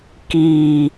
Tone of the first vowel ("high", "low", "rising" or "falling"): low